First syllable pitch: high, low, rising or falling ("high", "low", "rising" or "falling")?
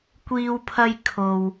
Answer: high